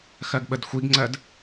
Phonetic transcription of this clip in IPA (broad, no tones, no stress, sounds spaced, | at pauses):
x ɜ ɡ ɓ ə d xʷ i ɡ ŋ͡ǀ ɜ d